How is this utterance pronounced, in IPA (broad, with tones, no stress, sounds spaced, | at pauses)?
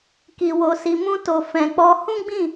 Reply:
k i˧ w o˧ s i˧ m ũ˧ t o˨ f ɛ̃˨ k͡p ɔ˧ h ũ˦ ɡ͡b ĩ˦˨